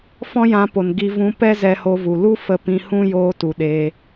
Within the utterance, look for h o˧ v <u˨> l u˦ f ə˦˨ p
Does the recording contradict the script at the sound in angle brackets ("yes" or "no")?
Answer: no